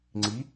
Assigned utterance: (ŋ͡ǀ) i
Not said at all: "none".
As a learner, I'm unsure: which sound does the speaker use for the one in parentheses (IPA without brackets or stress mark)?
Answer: ŋ͡ǀ